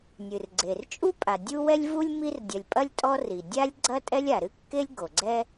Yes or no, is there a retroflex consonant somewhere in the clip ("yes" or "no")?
no